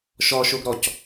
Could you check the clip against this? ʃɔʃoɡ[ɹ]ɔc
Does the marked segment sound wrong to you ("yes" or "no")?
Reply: yes